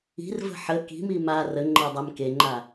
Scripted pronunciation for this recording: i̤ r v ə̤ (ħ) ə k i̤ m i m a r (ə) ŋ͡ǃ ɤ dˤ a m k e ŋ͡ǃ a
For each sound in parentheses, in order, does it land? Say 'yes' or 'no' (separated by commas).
yes, yes